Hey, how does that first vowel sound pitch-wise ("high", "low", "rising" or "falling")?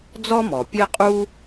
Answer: high